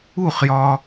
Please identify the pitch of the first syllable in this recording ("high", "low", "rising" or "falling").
falling